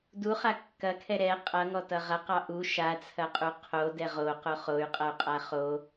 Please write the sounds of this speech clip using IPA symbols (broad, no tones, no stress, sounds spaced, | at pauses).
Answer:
d u χ a kː ɐ kʰ ɛ ɾ ɛ qʼ ʌ ŋ ɔ t ʌ ʁ ɐ q ɑ ʔ u ʃ a t͡sʰ ɐ qʼ u qʰ o d ɛ ʁ o q o χ o y̯ qʼ ʌ y̯ qʼ a χ o